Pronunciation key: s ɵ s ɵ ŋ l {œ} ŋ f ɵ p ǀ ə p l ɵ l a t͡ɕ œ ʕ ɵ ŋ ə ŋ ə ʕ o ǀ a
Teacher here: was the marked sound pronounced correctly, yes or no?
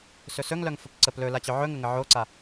yes